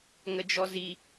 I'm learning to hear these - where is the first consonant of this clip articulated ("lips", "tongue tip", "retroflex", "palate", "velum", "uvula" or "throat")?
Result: velum